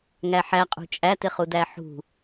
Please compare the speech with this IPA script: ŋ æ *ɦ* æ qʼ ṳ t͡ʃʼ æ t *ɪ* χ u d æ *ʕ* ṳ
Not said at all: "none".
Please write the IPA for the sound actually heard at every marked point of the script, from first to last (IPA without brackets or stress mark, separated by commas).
ħ, ɪ, ħ